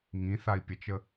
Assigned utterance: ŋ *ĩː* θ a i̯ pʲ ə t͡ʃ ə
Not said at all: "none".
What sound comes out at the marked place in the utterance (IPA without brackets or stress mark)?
ĩ